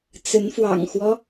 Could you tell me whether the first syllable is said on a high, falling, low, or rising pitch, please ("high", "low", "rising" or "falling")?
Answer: rising